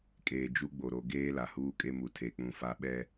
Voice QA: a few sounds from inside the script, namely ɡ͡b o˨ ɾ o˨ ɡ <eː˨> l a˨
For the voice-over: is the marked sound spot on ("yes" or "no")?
no